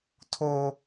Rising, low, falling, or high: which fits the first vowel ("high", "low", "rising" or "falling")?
high